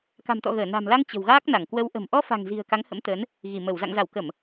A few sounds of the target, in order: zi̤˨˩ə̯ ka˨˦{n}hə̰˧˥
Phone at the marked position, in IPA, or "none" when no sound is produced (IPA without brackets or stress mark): ŋ